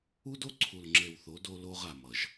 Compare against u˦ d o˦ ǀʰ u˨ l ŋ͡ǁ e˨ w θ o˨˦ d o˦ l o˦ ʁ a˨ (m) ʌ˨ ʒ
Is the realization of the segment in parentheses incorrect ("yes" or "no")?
no